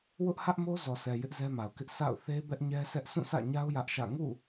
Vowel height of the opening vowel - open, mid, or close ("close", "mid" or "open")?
close